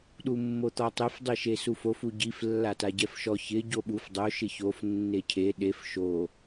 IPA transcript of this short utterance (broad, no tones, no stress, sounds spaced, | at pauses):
ɗ u mː o t̪ ɔ tˤ e f dˤ i ʃ e s u f o f u ɟ i f lː a t a ɟ ɛ f ʃ ɔ ç ɪ ɟ o ɓ u f dˤ o ʃ ɪ ç o f nː e cʰ e ɗ e f ʃ o